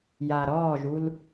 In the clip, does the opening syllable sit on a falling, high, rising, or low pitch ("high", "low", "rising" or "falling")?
low